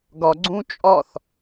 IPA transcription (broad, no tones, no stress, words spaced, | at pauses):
ɡɒ ɡ͡ǀũt͡ʃʼɒθ